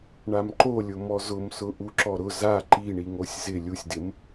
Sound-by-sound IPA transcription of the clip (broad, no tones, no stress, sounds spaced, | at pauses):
ɳ a m ǃ o lʲ ʊ m ɔ z ʊ m s ʊ ʔ u ǁ ɔ ɾ ʊ z a ǃ i ɳ i ŋ o sʲ z ɪ lʲ u sʲ d ɪ m